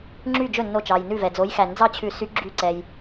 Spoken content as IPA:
ŋ͡ǁ y˥˩ d͡ʒ ɵ˥˩ nː o˧˩ t͡ʃ ɑ˩ j n ʉ˧˩ v ɛ˩ d͡z o˨˥ j x æ˨˩˦ n d͡z ɑ˥˩ t͡ɕʰ ʉ˨˩˦ s y˨˥ ɡ͡ǁ y˧˩ ǀ ɛ˩ j

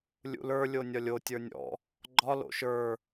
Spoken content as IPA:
lʲ ṵ l ə˞ lʲ o nʲ ɒ lʲ o tʲ ə˞ nʲ ɔ̰ | ɡ͡ǃ ɒ l o̰ ʃ ə˞

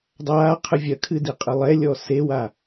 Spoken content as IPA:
dˤ aː qʰ ɨ vʲ ɐ kʰ ɨ d i qʼ ɨ lˠ ɛ lʲ ɔ s e w a

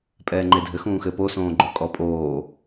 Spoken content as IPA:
pʼ ɛː ŋ͡ǃ e dʱ ɘ x ũː x ɘ p o s õː ɡ͡ǃ o kʼ ɔ pʼ oː

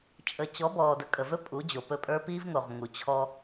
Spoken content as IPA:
t͡ʃʼ ə˨ t͡ɕ ɔ˨˦ b ɔː˨ d ə˨ kʼ ə˨ v ɵ˦ pʼ u˨˦ d͡ʑ o˨ p ɵ˦˨ pʼ ə˞˦ p i˦ v ŋ o˨ ʁ ŋ u˨ t͡ɕʰ ɔ˦

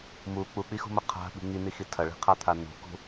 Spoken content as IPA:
m u k͡p u k͡p i x ṳ m ɐ qʰ a̤ ɓ i̤ ŋ i n i x i tʰ ɐ ɭ i̤ qʰ a t̪ʰ a n ṳ k ṳ

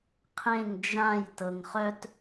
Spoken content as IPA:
qʰ ẽ ŋ d͡ʒ ã j t ɤ ŋ χ œ t

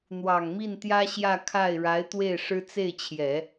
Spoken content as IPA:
n̪ w ɑ˨˩ ŋ m i˥˩ n t̪ j ä˥ ɕ j ä˥˧ kʰ a˥˩ ɪ̯ ɻ a˧˥ ɪ̯ t̪ w e˥˩ ɪ̯ ʂ ɻ̩˥ t͡s e˥˩ ɪ̯ t͡ɕʰ j ɛ˨˩˦

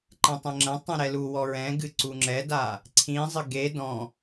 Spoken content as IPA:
ǃ ɛ̃ tˤ ɛ̃ ŋ͡ǁ ɐ̃ tˤ ɛ̃ ɾ ɛ l u w ɔ ɹ ɛ̃ ɡ ɨ ǀ u ŋ͡ǁ ɛ d a | ǀʰ ĩ zˤ ɘ ɡ e d ɔ̃

